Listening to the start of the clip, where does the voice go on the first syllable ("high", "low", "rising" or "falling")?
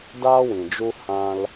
high